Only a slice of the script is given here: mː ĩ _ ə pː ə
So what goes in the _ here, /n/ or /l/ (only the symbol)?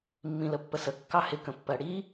l